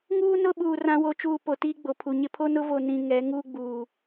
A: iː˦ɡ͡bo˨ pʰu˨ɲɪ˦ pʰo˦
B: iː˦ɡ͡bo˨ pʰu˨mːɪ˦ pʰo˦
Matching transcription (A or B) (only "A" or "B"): A